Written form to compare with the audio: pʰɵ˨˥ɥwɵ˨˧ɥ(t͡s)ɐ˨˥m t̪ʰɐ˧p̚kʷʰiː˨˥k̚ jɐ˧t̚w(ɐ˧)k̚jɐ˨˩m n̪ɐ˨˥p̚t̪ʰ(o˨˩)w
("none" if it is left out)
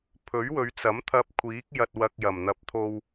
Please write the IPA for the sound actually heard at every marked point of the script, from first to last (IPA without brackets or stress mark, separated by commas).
t͡s, ɐ˧, o˧